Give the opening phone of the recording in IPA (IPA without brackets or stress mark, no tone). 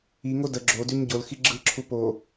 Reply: i